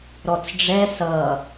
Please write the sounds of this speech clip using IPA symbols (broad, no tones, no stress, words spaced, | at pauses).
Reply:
ɾɔt͡sɖ͡ʐɛ sʌ